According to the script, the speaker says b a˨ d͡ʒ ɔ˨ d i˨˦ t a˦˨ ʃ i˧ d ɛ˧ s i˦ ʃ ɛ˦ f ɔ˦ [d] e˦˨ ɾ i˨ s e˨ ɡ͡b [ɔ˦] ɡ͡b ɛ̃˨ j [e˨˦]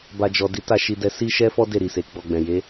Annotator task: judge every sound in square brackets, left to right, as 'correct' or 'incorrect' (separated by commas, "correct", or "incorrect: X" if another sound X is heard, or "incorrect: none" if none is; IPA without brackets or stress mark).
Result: correct, incorrect: ɔ˨, correct